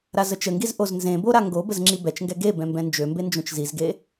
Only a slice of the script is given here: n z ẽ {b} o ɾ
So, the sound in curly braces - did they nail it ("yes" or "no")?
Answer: yes